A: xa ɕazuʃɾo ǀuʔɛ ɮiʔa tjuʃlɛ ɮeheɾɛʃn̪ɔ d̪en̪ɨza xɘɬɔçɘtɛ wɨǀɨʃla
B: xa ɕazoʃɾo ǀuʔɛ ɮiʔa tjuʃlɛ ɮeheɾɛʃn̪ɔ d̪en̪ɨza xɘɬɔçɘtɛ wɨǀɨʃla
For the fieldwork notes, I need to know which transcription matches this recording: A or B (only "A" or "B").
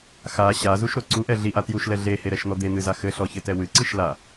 A